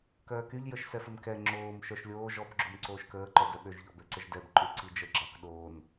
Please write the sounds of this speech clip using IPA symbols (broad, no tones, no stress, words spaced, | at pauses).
kœːkyʎ jəʃsɛfəmkɛ ŋ͡ǁoːm ʃœʃlʲoː ʒɔb ɡ͡ǁomǀoːʃkəː ǃœdœɓøʒ ʎɔbɛǀəʒdɛb ǃyǀid͡ʒə ɡ͡ǁakɗoːn